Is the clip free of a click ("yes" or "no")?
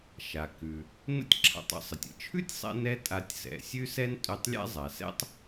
no